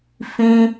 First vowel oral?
no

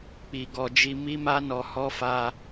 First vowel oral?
yes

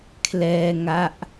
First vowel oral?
yes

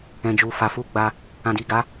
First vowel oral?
no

